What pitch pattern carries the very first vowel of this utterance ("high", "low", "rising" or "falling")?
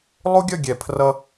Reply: high